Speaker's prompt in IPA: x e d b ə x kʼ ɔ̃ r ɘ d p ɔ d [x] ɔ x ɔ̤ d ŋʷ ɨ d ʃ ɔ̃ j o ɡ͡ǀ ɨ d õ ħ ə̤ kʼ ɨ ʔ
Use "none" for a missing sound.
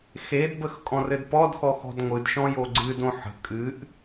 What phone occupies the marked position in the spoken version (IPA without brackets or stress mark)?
x